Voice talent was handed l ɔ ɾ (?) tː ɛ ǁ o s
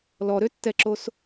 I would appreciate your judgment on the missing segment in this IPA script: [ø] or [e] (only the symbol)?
ø